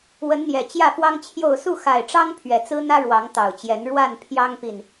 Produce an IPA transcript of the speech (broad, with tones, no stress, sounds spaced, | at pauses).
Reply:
w ə˨˦ n n̪ j ɛ˨˩ t͡ɕ j ä˥˨ f w ɑ˦ ŋ t͡ɕʰ j o˥˨ ʊ̯ s u˥˨ x a˨˩ ɪ̯ ʈ͡ʂ ɑ˦ ŋ pʰ ɥ ɛ˨˩ t͡s ɹ̩˦ n̪ ä˦ ɻ w ɑ˨˦ ŋ t̪ ɑ˨˩ ʊ̯ t͡ɕ j ɛ˨˦ n ɻ w a˥˨ n pʰ j ɑ˦ ŋ p i˨ n